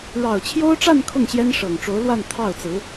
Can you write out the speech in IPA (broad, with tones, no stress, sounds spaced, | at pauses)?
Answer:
ɻ ɑ˨˩ ʊ̯ t͡ɕʰ j o˥ ʊ̯ ʈ͡ʂ a˥˧ n kʰ ʊ˥˩ ŋ ɕ j ɛ˥ n ʂ ɤ˨˩ ŋ ʈ͡ʂ o˧˥ ʊ̯ l w a˥˧ n t̪ʰ ɑ˥˩ ʊ̯ t͡s ɹ̩˧˥